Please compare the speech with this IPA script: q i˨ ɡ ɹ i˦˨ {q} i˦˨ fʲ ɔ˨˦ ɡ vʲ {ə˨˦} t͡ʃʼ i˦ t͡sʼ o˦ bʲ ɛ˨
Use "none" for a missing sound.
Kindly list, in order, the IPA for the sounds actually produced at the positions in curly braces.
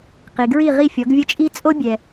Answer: ʁ, ə˦

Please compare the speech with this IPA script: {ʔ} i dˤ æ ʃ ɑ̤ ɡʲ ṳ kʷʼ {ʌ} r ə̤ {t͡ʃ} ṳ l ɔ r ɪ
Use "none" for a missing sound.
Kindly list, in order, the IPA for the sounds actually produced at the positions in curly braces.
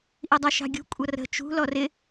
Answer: ʔ, ʌ, t͡ʃ

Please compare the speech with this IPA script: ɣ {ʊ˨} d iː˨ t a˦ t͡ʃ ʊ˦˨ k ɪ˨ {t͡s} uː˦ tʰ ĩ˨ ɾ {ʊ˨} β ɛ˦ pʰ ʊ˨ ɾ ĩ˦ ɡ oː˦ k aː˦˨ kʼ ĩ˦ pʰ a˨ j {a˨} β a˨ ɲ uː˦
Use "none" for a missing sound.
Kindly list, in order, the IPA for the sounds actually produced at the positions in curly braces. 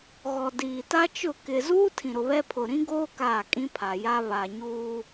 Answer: ɔ˨, z, ʊ˨, a˦

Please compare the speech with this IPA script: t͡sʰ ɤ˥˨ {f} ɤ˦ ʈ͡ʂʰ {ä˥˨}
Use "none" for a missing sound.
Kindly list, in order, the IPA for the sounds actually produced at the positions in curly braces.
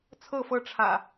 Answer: f, ä̰˨˩

